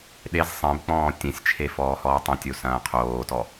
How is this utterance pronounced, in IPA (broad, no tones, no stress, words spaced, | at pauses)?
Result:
ɗez sˤẽbk͡pɔ̃ː tʲẽsʲt͡ʃʰefɔː hɔːtˤɐ̃tʲo sɐ̃ːqʰoːtɔ